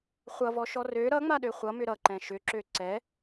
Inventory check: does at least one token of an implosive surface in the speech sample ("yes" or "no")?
yes